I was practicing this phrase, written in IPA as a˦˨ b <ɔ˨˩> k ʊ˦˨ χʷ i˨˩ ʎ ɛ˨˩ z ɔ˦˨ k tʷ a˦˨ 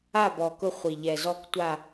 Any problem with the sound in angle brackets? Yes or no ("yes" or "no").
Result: no